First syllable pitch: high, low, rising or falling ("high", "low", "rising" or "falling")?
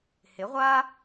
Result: rising